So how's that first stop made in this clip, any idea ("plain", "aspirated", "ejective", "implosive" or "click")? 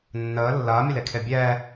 aspirated